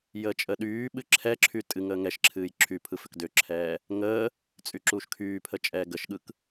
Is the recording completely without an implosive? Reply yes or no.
no